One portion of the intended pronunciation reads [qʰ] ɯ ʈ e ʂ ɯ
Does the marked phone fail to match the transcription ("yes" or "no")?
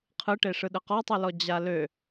no